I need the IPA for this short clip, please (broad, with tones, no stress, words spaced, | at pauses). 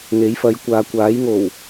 ŋe˨˥jfɐ˨˧jkʷaː˨ kʷaː˨˥jŋo˨˩w